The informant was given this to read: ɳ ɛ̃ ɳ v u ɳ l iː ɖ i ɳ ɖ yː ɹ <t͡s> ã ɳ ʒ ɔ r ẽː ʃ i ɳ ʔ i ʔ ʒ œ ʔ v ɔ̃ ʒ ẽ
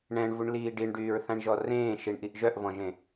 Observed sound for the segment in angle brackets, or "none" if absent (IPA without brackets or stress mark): θ